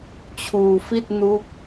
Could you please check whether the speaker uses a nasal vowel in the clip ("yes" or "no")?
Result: no